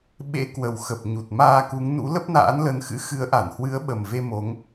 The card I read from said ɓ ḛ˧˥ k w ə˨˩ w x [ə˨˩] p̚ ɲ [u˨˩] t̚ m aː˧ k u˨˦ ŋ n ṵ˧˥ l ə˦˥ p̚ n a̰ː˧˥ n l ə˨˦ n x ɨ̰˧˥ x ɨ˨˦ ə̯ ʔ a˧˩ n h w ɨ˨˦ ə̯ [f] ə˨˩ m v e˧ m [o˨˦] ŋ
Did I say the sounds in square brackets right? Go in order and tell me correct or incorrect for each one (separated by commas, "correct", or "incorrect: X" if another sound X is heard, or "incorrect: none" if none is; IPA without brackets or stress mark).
correct, correct, incorrect: ɓ, correct